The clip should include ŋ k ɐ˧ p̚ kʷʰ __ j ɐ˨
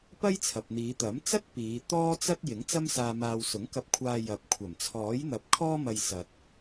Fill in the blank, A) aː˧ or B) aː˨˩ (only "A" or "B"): A